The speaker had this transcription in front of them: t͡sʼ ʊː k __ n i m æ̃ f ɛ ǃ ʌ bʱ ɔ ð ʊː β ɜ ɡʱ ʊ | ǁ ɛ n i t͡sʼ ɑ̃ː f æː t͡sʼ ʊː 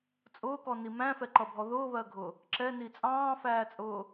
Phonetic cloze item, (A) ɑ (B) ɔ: B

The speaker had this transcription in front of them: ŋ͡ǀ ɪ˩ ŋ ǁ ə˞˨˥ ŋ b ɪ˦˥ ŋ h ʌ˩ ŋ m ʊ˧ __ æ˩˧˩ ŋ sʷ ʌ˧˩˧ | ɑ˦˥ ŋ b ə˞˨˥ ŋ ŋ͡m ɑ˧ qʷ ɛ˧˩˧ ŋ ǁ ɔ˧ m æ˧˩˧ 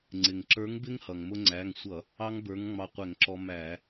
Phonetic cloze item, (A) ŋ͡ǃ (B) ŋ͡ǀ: B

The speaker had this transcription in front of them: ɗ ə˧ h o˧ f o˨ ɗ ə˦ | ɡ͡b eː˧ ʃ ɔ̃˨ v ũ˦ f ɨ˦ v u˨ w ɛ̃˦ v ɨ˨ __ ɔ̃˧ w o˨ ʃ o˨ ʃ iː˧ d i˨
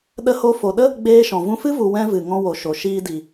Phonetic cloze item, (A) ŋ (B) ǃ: A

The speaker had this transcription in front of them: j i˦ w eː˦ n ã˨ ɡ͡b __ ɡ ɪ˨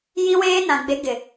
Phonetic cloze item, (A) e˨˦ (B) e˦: A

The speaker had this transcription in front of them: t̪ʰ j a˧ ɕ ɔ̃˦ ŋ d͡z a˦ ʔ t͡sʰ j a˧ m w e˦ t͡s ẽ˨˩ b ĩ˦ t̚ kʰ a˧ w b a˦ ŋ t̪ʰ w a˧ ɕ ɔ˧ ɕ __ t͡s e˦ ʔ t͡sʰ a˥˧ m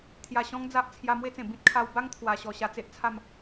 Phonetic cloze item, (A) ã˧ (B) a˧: B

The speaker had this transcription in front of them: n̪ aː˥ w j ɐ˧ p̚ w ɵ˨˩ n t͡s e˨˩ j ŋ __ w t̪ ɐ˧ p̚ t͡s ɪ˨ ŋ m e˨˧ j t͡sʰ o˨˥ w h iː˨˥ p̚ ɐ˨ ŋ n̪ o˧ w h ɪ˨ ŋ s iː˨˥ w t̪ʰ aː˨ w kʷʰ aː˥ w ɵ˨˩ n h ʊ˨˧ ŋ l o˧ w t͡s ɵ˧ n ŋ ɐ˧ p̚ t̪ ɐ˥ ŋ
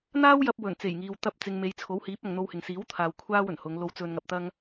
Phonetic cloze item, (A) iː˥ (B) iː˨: B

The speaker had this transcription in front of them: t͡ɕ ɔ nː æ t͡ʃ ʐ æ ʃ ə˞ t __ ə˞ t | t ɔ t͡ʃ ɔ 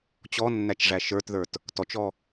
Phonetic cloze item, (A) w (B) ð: B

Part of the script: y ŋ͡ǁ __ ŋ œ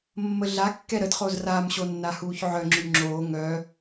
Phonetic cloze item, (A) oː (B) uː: A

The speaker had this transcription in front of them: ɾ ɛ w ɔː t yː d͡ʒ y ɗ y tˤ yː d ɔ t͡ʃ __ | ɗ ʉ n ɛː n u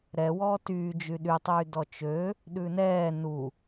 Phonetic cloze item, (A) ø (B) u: A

